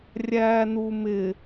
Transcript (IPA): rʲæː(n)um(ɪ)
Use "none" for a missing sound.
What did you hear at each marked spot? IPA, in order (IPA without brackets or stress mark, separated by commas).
n, ɪ